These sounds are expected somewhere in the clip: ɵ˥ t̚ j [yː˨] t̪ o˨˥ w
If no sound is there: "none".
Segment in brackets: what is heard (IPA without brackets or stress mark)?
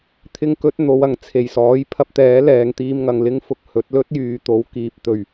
yː˨